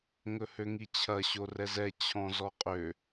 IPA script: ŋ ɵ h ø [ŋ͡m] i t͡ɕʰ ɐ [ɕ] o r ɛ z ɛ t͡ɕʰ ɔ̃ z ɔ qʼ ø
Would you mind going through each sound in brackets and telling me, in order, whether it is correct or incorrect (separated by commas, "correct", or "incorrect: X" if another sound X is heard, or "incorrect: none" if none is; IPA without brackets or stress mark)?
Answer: incorrect: ŋ, correct